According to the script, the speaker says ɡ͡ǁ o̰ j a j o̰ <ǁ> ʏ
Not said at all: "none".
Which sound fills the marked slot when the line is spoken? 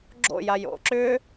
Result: ǁ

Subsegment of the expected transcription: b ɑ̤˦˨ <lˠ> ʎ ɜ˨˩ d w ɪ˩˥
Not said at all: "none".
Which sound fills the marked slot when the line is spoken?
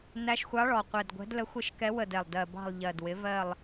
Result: lˠ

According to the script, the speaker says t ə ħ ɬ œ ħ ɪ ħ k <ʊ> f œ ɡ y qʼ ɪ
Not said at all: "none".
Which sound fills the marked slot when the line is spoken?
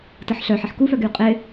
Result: u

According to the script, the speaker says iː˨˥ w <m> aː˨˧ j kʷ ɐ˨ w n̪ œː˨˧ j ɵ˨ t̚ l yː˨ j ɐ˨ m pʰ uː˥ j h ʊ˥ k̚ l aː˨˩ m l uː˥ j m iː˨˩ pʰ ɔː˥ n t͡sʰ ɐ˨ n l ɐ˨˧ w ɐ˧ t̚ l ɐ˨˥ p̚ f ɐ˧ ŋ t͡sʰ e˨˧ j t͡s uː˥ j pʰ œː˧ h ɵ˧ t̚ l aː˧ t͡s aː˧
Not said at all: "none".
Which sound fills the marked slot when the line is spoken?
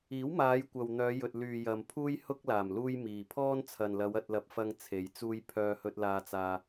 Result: m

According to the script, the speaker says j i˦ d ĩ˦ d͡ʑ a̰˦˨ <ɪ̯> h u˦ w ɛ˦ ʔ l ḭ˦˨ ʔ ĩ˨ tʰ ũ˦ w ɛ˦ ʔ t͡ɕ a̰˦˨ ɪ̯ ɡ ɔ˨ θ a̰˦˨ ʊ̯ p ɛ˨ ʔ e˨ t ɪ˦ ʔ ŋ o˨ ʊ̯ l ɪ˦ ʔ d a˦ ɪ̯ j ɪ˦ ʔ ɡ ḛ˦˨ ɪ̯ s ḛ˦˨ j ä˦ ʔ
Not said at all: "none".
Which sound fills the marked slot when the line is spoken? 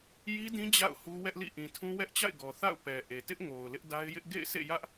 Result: ʊ̯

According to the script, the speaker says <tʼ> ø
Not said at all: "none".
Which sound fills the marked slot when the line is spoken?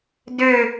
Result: d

